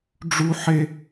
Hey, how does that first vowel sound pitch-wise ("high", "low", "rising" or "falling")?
high